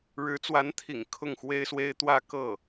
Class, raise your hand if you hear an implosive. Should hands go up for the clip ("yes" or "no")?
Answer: no